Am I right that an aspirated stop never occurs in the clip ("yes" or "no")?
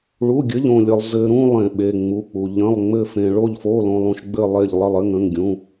yes